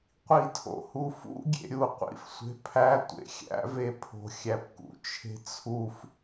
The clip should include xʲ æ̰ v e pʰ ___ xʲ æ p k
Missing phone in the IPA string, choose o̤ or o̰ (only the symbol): o̤